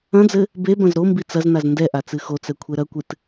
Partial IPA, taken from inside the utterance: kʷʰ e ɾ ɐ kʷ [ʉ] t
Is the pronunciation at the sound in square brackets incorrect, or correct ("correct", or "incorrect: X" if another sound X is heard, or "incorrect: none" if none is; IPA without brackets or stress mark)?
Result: incorrect: ɨ